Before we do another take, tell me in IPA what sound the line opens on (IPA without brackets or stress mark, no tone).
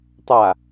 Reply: tˤ